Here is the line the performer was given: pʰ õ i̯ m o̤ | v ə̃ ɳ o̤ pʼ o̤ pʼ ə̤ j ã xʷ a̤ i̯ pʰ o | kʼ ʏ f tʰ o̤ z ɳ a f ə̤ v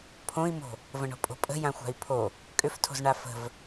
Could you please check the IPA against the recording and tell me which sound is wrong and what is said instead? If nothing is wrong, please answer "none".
none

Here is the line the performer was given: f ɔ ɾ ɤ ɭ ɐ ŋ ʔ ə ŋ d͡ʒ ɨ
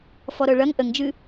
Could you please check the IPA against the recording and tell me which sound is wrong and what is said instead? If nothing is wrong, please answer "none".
none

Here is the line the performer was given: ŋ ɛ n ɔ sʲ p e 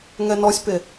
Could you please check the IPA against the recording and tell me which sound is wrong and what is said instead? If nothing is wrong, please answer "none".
none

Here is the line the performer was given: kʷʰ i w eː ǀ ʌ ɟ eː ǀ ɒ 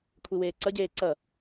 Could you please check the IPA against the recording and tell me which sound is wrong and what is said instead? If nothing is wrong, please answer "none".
ɒ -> ʌ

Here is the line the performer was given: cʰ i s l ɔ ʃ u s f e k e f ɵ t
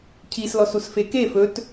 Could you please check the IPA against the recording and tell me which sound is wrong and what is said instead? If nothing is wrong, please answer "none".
ʃ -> s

